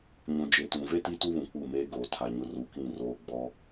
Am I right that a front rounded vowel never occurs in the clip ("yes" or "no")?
yes